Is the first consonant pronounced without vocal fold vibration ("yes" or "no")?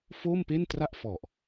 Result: yes